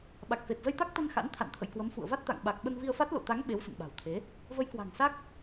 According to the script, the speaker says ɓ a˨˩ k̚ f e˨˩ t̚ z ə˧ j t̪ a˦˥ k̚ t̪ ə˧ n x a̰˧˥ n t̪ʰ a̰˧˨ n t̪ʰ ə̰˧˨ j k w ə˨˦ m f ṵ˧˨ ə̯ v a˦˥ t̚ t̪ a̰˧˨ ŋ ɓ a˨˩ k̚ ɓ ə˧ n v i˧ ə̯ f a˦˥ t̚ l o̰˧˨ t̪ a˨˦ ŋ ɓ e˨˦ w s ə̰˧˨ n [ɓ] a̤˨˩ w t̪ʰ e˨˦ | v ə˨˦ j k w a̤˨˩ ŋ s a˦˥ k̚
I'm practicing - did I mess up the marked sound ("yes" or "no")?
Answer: no